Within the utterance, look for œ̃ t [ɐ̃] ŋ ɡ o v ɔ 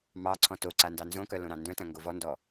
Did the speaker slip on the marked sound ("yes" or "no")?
no